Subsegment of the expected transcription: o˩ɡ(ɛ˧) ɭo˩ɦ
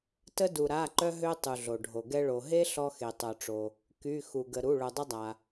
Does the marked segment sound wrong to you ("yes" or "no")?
no